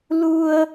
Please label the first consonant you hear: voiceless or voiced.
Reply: voiced